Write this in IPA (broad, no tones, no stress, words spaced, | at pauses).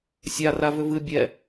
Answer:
sʲa ravʏvɨ bʲɛ